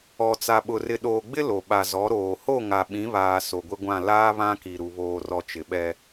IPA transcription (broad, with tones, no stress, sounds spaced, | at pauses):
ɔ˨ t͡s a˨ ɓ ʊ˨ r ɪ˨ ɗ oː˨ ɡ͡b ɪ˦ l o˨ ɓ a˨ z ɔ˨˦ ɾ oː˨ h o˦˨ ŋ a˨ ɓ ĩ˨˦ β aː˨ s o˨ ɡʷ ɪ˦ ɡʷ ã˦˨ l aː˦ β ã˦ k i˨ ɾ u˨ β oː˨ r ɔ˨ t͡ʃ ɪ˨ ɓ ɛ˦